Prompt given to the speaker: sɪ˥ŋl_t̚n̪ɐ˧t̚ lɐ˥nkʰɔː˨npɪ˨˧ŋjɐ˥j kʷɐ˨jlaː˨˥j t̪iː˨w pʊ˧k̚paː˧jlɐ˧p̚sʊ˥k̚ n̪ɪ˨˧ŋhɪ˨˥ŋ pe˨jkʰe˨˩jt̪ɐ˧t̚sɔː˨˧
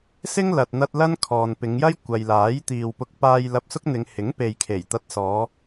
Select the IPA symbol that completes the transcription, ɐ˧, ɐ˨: ɐ˨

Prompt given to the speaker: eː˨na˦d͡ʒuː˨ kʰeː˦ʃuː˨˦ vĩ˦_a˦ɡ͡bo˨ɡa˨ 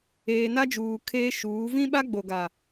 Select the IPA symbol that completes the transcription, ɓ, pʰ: ɓ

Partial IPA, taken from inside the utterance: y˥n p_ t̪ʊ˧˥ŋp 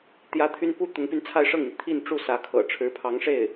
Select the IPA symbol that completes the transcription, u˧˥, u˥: u˥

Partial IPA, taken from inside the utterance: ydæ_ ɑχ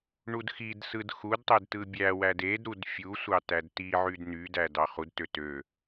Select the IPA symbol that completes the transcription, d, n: d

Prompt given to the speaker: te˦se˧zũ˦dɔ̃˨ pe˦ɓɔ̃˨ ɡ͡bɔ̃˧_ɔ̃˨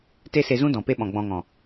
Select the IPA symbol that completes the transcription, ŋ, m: ŋ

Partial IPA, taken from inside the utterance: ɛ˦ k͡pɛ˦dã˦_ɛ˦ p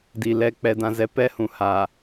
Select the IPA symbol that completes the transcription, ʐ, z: z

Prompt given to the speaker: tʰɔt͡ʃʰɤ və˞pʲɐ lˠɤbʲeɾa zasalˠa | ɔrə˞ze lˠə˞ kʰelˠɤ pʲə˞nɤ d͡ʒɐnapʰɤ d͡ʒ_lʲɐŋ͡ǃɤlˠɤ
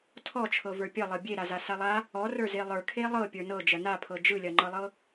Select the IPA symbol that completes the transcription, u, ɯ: ɯ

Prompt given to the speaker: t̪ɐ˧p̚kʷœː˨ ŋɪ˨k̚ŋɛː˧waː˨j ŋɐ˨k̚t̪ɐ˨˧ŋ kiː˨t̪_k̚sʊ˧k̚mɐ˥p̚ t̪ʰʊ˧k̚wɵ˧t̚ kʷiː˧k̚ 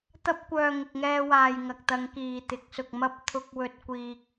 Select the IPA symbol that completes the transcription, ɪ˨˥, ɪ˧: ɪ˨˥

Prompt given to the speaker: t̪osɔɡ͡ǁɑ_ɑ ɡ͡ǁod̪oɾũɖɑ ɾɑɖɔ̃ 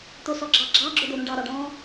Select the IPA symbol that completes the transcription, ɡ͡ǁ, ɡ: ɡ͡ǁ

